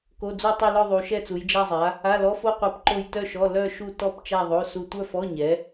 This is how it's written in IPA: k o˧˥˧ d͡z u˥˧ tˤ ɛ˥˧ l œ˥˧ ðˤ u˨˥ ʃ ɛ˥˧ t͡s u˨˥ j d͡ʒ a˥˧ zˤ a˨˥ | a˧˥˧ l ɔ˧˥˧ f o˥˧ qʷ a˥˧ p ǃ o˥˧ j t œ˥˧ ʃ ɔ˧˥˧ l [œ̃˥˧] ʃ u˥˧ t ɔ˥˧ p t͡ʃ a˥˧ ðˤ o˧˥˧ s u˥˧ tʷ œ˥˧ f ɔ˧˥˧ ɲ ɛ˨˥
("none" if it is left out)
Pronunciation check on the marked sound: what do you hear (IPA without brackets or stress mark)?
œ˥˧